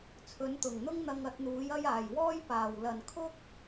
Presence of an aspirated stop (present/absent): present